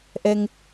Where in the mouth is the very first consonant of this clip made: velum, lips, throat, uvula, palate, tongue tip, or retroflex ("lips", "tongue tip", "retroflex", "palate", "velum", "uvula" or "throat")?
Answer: throat